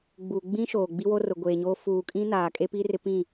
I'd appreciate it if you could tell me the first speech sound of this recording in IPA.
ɡ͡b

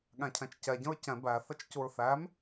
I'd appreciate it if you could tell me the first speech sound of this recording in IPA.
ɠ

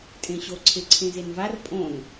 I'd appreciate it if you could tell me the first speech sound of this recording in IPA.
tʼ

